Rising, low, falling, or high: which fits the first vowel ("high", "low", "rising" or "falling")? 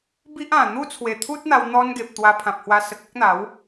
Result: high